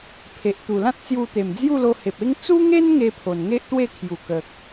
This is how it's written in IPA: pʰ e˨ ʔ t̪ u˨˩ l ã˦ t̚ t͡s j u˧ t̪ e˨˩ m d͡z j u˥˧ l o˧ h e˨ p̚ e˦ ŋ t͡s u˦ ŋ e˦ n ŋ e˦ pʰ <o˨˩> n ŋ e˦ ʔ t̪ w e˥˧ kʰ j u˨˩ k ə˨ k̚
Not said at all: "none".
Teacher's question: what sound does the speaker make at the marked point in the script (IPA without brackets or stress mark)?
o˨˩